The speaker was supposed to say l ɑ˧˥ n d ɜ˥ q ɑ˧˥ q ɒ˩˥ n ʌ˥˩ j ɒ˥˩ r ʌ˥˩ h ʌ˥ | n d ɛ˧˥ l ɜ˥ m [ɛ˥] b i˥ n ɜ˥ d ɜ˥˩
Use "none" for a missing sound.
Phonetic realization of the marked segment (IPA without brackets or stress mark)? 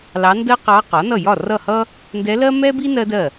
ɛ˥